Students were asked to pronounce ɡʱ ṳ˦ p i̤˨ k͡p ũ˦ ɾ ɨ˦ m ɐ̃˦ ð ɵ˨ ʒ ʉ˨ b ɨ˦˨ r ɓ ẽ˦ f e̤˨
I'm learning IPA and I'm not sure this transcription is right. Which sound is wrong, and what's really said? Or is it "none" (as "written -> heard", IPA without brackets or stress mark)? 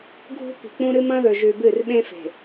none